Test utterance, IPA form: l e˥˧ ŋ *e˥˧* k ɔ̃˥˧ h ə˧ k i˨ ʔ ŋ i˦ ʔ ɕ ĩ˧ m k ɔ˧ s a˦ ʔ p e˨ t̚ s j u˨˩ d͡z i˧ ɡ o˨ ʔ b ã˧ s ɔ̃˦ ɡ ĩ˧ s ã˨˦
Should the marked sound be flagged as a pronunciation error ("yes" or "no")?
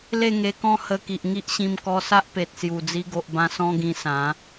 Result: yes